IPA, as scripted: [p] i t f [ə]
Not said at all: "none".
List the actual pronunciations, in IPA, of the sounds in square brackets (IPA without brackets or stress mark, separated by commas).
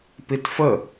p, ə